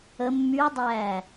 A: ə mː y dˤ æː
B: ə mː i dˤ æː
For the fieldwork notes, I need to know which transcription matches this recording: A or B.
A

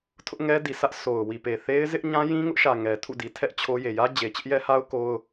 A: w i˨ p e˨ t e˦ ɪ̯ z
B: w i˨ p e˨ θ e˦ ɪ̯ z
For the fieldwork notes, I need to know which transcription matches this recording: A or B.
B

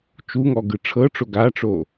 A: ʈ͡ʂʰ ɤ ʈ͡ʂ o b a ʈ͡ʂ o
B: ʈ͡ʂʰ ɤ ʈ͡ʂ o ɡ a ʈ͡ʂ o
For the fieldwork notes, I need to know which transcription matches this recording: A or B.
B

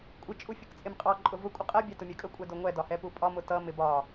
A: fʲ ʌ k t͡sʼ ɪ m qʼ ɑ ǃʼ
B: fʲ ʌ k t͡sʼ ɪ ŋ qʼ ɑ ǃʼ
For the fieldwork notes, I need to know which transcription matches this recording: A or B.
A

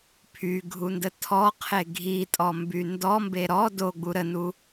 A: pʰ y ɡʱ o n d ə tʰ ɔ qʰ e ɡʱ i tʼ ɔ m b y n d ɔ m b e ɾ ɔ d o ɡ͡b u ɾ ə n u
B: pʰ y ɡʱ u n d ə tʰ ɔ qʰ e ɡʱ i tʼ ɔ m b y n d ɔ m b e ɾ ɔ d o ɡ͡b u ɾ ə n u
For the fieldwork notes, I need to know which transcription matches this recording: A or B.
B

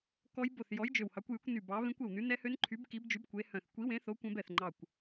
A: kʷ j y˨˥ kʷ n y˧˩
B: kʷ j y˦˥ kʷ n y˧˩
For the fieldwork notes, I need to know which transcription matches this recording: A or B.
A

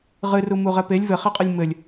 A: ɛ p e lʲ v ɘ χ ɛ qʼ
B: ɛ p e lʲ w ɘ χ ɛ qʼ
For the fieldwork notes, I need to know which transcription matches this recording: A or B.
A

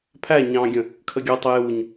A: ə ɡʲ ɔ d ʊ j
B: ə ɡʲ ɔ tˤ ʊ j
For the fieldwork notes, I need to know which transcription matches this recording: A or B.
B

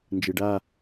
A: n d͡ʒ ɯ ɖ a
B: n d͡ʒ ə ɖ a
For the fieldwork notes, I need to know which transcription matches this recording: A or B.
A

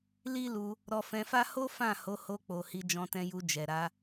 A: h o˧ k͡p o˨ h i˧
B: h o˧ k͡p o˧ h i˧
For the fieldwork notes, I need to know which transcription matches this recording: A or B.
A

